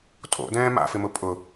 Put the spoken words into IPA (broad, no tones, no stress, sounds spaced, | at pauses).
tʼ o̰ d ɛ̃ː m a̰ f ɪ m ʊ pʼ ʊ